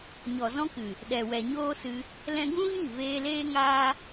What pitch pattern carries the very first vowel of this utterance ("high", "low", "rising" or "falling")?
low